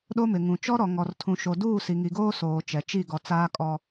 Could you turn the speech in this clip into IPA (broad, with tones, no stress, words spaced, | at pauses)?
ɗo˦mɪ˨ŋũ˨ t͡ʃɔ˦ɾɔ˨ ŋɔ˨rtʰũ˨ʃo˨ duː˦˨si˨ŋi˨ɡoː˦ soː˨t͡ʃɛ˨t͡ʃi˦˨ ɡɔ˨t͡saː˦ kʼɔ˦